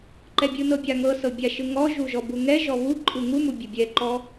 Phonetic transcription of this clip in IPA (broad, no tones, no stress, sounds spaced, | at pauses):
ǃ ɛ bʲ ɯ n ɤ bʲ a ŋ ɤ s ɤ bʲ a ʃ ɯ ŋ ɔ ʒ u ʒ ɔ b u ŋ ɛ ʒ ɔ β u ǃʼ ɯ ŋ u m u bʲ ɛ bʲ ɛ ǃ ɔ